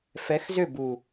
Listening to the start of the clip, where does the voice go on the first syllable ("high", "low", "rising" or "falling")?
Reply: rising